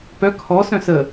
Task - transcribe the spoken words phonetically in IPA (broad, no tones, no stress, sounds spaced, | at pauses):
p œ kʰ ɔ s œ̃ s ə